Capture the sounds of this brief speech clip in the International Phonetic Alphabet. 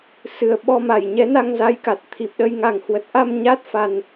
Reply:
s ɨ˨˩ ə̯ ɓ ɔ˧ m a˧˩ j ɲ ɛ˨˦ n a˧ ŋ z a˨˦ j k a˨˩ t̚ t̪ʰ i˨˩ p̚ ɗ ə˧ j ŋ a˨˩ ŋ h w ə˨˩ t̚ ʔ a˧ m ɲ a˦˥ t̚ f a˨˩ n

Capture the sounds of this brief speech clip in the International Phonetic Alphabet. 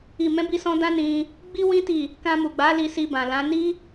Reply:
i˨ m ɛ̃˨˦ b i˧ s ɔ̃˧ d ã˦ n ĩ˧ | ɡ͡b i˦ w ĩ˦ t i˦˨ | k ã˧ m u˨ ɡ͡b a˨˦ l i˧ s i˧ b ã˨ l ã˨˦ n i˦

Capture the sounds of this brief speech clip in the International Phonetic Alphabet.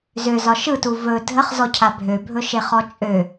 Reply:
z ø z ɒ ʃ ɯ t u v ɵ dʱ ə χ z ɔ cʰ a bʱ ø bʱ ɵ ʃ e χ ɔ t͡ʃʼ ø

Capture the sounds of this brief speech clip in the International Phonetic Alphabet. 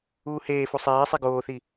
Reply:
uː h eː f u sˤ eː sˤ e ɡ oː θ i

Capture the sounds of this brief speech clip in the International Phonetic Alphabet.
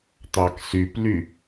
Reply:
t̪ ɑ k s y p l y

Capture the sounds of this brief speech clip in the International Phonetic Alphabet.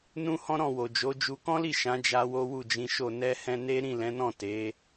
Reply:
n ũ˦ h ɔ̃˦ ɾ ɔ̃˦˨ w o˨ d͡ʒ o˨˦ d͡ʒ u˧ k ɔ̃˦ l i˦˨ ʃ ã˨˦ d͡ʒ a˦ w o˦ w u˦˨ d͡ʒ ĩ˨˦ ʃ o˦˨ n ɛ˧ h ɛ̃˧ n e˦ ɾ ĩ˦˨ l ɛ̃˨˦ n ɔ̃˦˨ t e˨˦

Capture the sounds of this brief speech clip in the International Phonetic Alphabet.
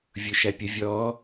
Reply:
vʲ ʊ ʃ æ pʲ ə vʲ ɔ

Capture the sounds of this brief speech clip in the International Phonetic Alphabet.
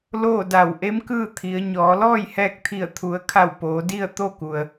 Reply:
l oː˥˨ d a˧˩ w ʔ e˧˥ m k ɯː˥˨ t̪ʰ i˩˧ ə̯ ɲ ɔː˩˧ l ɔː˥˨ j h ɛː˧ k̚ t̪ʰ i˧˩ ə̯ t̪ʰ u˩˧ ə̯ kʰ a˧˩ w p oː˩˧ d i˥˨ ə̯ t̪ o˥˨ k u˩ ə̯

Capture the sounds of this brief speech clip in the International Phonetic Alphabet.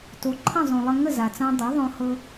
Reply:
t o˩˥ ǃʰ ə̃˥˩ zˤ õ˩ lˠ ə˧ ŋ ə˥˩ z a˩ t͡s ã˧ dˤ ɛ˩˥ ðˤ õ˧ h ɤ˧

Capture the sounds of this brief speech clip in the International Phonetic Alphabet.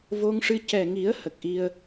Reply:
v o˧ ŋ ʂ ɨ˧ c ɛ˨˩ ŋ i˨˩˦ ə̯ h ə˨˩ k̚ ʔ i˧ ə̯

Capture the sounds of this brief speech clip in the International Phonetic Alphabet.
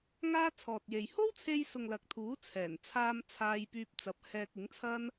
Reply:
ŋ aː˥ t͡sʰ ɔː˨ t̚ j e˨ j h o˥ w t͡sʰ e˧ j s ʊ˨ ŋ l ɐ˨˥ k̚ t̪ʰ uː˨˥ t͡sʰ ɛː˨˩ n t͡sʰ aː˧ m t͡sʰ aː˧ j p yː˧ p̚ t͡s ɐ˨˥ p̚ h ɛː˧ k̚ ɪ˨˥ ŋ t͡sʰ ɐ˥ n

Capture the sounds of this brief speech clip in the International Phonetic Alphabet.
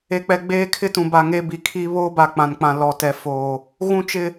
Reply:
e˨ k͡p ɛ˨ ɡ͡b eː˦ kʰ ɪ˦ t ũ˨ b a˨ ŋ e˦ b i˨ kʰ i˦ β oː˦ b a˨ k͡p ã˨ n k͡p ã˨ l ɔ˨ t ɛ˨ f oː˨ | ɣ ũ˦ t͡ʃ ɪ˦

